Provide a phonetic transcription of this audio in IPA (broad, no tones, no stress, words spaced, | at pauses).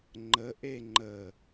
ŋ͡ǃə ʔeŋ͡ǃə